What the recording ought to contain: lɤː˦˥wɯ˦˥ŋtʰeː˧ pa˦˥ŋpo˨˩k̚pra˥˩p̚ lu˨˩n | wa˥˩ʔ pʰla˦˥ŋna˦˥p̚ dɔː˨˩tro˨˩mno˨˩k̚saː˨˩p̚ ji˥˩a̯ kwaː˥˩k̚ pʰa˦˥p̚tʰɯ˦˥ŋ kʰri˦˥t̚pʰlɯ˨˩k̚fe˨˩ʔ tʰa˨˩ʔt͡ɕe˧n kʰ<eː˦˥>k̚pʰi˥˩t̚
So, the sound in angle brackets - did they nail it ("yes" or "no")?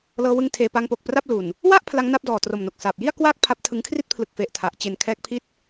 no